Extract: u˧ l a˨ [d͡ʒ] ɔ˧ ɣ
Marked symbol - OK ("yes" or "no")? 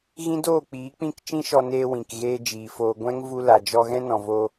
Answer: yes